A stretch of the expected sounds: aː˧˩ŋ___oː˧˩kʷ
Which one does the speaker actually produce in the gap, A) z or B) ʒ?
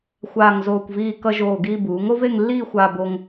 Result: A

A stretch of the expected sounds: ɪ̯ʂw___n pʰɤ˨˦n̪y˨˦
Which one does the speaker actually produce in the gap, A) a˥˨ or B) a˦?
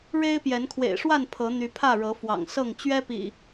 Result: A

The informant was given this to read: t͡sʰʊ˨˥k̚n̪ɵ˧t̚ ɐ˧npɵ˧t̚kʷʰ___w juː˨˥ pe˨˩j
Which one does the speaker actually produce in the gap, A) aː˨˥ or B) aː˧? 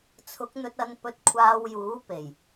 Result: B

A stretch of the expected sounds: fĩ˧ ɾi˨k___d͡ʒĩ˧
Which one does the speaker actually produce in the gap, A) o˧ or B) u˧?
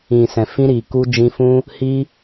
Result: B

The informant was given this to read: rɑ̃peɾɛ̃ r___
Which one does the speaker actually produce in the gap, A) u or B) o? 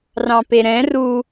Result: A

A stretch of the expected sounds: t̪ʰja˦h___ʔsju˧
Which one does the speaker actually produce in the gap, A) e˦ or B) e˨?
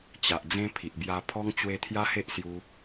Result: A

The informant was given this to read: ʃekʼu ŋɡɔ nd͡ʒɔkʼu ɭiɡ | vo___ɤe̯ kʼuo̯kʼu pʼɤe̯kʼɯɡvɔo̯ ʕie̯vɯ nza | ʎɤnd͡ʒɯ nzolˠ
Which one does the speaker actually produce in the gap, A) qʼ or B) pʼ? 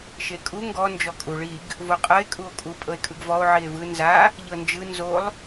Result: A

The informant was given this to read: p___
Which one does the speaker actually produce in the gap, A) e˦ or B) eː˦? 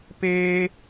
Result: B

